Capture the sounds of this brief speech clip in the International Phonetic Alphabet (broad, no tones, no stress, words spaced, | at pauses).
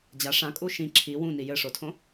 d͡ʑa ʂãkʼu ʃĩ ǁʰi wũni jɘʂotʰõ